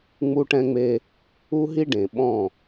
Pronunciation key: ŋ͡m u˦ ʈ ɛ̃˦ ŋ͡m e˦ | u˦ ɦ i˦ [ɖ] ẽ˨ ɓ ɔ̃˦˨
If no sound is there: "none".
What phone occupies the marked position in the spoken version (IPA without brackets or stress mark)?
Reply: ɖ